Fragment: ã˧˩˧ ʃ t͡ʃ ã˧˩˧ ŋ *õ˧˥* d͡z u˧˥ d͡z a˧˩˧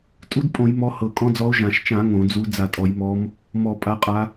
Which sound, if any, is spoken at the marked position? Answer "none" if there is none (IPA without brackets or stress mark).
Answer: õ˧˩˧